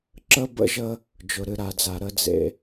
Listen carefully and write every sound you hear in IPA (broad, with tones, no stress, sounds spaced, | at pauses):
ǁ ə˦ b ə̰˦ ʒ ə˦ | d͡ʒ ʊ˨ ɾ ɨ˨ ɾ a˨ d͡z a˨ ɾ ə˦ d͡z ḛ˦